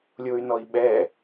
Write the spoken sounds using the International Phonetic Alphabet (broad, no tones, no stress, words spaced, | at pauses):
lʲoy̯nɔi̯ɓɛ